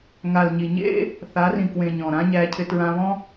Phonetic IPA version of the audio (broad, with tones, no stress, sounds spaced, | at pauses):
ŋ a˨ l ɲ i˨ ɲ ḛ˦ | θ a˨˦ r ĩ˨ k w ẽ˨ ɲ ɔ̃˨ ɾ ã˦ ɲ æ˧ cʰ ɪ˧ t ɹ ã˧ β ɔ̃˦